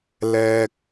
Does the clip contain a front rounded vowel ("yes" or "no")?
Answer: no